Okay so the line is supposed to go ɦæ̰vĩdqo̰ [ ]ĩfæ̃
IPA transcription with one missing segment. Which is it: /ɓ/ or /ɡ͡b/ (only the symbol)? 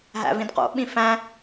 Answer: ɓ